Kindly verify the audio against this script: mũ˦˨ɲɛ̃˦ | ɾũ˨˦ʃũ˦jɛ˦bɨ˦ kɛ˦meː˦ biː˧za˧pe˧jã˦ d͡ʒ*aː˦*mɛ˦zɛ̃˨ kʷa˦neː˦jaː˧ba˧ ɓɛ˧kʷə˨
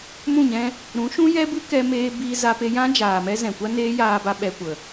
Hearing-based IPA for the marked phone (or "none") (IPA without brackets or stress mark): aː˨